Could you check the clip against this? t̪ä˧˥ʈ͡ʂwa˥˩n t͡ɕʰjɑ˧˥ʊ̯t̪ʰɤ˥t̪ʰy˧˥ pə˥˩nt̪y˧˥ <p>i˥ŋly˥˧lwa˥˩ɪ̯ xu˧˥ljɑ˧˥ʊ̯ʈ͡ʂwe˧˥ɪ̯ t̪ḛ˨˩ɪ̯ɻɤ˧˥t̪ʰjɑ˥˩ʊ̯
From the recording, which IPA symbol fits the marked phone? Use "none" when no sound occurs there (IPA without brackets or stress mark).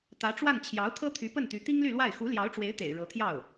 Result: t̪